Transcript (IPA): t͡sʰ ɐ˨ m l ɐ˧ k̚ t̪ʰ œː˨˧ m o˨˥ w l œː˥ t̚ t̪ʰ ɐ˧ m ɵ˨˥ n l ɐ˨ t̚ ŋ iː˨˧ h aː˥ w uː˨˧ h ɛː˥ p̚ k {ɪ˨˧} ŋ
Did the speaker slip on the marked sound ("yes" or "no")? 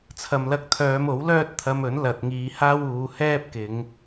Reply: no